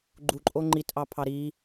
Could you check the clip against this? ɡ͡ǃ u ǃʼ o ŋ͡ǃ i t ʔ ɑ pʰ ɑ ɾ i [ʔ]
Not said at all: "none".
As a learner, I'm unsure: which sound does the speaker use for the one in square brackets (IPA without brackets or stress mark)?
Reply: none